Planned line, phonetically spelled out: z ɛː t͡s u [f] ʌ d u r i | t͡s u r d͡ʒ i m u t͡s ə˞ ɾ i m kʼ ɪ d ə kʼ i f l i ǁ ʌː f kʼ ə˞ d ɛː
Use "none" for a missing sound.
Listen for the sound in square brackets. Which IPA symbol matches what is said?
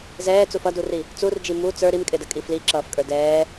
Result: f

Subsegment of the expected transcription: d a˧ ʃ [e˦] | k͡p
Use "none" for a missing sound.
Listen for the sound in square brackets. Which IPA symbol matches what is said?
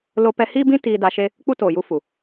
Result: e˦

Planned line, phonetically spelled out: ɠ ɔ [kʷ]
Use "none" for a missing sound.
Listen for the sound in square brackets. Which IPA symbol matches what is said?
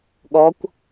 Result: kʷ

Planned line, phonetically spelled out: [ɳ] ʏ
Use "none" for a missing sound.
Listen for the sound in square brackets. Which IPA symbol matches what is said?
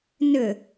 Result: n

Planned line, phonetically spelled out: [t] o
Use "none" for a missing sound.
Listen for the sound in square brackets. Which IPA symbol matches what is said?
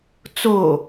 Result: t͡s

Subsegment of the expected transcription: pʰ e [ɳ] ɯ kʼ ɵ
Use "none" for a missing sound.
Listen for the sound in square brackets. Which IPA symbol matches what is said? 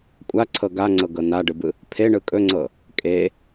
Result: ɳ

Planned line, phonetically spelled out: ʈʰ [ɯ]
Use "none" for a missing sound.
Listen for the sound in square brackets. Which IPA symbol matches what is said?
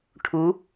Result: u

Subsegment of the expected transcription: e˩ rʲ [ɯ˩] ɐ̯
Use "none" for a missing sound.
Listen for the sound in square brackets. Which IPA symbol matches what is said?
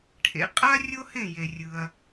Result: ɯ˩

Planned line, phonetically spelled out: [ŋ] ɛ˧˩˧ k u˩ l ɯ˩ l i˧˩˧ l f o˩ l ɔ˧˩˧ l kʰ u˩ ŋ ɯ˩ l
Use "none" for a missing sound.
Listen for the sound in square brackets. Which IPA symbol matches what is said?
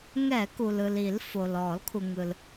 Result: ŋ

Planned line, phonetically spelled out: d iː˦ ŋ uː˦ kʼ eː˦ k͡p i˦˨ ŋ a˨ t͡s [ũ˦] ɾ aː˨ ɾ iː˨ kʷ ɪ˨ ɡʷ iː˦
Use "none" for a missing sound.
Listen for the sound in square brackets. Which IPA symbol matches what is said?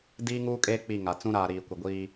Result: ũ˦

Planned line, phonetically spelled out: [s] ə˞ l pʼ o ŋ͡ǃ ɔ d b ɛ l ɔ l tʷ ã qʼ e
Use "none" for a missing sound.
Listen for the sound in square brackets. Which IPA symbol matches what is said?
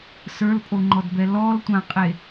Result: s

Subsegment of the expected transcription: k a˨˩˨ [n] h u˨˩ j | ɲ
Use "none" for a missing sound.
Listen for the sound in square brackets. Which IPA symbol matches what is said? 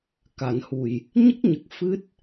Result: n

